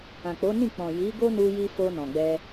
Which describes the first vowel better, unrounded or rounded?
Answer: unrounded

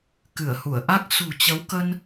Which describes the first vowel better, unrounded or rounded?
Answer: unrounded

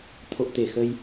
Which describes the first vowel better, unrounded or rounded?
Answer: rounded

